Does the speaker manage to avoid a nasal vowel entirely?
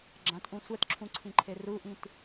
no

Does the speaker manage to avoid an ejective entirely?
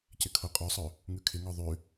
no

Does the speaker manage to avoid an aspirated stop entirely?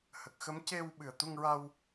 yes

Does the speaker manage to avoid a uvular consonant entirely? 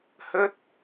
yes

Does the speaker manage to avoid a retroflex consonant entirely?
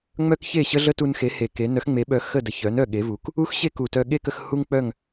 yes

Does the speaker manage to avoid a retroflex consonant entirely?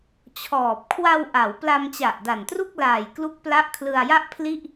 yes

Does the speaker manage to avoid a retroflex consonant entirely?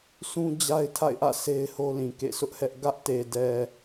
yes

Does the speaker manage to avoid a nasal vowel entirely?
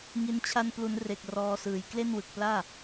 yes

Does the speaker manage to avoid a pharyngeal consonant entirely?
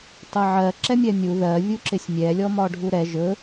no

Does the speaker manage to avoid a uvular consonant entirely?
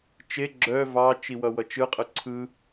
no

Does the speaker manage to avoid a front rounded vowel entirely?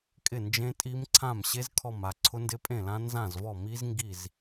yes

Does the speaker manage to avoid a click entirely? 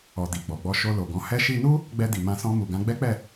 yes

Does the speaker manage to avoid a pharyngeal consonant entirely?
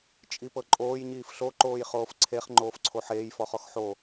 no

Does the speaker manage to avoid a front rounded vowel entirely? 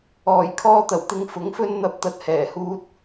yes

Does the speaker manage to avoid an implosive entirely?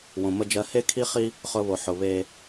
yes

